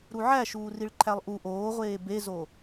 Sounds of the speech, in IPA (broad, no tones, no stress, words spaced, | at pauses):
ɾuʕæʃuː riɭǃʰælˠʔu ʔoːʁʷeː bezo